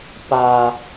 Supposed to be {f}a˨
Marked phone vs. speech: incorrect: p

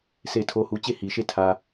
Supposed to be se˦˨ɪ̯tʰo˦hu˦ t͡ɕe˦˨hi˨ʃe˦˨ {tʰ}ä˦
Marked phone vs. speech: correct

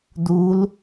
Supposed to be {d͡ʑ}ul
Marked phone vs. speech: incorrect: d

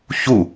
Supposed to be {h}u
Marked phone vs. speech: incorrect: ç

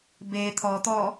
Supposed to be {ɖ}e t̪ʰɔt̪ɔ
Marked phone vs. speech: incorrect: b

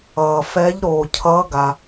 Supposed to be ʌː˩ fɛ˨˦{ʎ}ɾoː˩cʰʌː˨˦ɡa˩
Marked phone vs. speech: correct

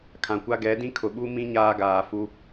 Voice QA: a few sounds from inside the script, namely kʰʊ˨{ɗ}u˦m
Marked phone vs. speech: incorrect: ɓ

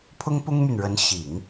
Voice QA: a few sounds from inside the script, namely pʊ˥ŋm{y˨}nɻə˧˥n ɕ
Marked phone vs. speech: correct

